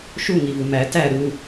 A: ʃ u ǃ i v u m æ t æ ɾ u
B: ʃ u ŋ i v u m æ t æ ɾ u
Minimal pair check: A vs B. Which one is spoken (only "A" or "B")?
B